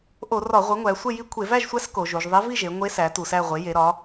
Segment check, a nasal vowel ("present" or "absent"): absent